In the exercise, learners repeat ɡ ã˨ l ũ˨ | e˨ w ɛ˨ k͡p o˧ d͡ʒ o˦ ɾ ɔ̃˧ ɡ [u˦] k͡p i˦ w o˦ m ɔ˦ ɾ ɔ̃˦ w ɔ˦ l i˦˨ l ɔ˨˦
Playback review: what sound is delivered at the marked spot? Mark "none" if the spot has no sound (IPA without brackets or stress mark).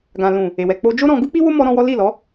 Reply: u˦